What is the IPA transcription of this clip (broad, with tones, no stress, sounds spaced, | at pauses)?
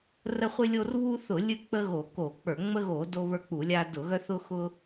r ə˦ χʷ ɨ˦ lʲ o˦ r β u˦ θ ʊ˧˩˧ lʲ ɨ˦ k͡p ə˦ ɣ o˧˩˧ k o˧˩˧ k͡p ə˞˧˩˧ ŋ͡m ə˦ ɣ o˧˩˧ d o˦ β ə˞˦ k͡p u˧˩˧ lʲ a˦ d ʊ˧˩˧ ɣ œ˦ θ ʊ˦ x ʊ˦